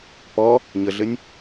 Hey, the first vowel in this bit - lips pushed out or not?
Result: yes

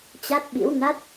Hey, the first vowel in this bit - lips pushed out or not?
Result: no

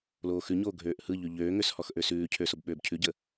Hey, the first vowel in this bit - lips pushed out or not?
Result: yes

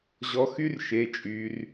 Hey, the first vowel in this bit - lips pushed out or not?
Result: yes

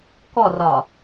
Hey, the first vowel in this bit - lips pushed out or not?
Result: yes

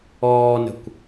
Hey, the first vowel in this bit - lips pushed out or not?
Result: yes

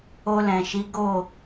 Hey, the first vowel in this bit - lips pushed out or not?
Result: yes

